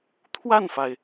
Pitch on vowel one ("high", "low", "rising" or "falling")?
falling